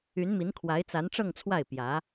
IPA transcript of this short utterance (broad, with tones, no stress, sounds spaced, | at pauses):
y˧˥ n m i˧˥ n kʰ w a˧˥ ɪ̯ t͡s a˧˥ n ʈ͡ʂ ɤ˥˧ ŋ t͡sʰ w a˥˩ ɪ̯ p j ä˧˥